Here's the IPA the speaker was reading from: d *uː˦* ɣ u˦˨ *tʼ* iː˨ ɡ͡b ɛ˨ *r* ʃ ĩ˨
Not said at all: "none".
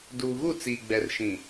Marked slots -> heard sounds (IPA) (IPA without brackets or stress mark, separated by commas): uː˨, t͡s, r